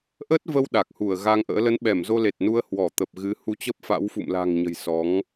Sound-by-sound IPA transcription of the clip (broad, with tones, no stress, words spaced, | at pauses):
ʔə˦˥t̚və˧w ɗa˨˩k̚hu˧˩ə̯ɣa˧ŋʔə̰ː˧˥ lə˨˦nɓɛ˧˩mzo˧le˨˩t̚ nu˧ə̯hwɔ˧˩ t̪ə˨˩p̚ɣɨ˨˦ hu˧t͡ɕə˦˥p̚fa̰˧˥w fṵ˧˨mla̤˨˩ŋɲə̤˨˩j sɔ˨˦ŋ